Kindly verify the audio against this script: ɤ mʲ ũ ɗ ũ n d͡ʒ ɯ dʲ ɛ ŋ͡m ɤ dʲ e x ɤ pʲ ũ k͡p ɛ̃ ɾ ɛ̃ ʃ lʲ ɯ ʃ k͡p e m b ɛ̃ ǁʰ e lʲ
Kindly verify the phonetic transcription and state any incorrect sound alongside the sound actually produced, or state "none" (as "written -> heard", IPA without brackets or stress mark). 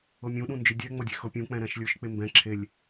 none